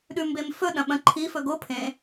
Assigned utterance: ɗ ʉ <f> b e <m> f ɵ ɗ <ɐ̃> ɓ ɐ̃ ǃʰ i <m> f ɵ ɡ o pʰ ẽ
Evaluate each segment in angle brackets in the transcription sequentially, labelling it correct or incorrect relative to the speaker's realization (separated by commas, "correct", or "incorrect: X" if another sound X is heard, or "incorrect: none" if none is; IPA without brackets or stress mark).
incorrect: m, correct, correct, incorrect: none